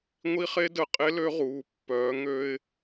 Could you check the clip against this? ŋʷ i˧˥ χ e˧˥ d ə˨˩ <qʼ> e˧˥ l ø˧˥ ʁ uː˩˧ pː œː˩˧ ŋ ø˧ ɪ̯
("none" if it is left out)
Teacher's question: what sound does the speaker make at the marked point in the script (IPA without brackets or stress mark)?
qʼ